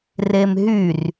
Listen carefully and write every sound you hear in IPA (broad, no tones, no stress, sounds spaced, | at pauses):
r e m ɦ y r